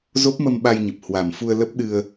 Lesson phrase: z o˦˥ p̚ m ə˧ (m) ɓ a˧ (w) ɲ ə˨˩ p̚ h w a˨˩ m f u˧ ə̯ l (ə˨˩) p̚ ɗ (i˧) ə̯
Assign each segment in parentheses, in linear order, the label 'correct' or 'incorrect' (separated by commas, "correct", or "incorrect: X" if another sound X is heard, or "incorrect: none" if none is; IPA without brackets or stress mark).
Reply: correct, incorrect: j, incorrect: ə˦˥, incorrect: ɨ˧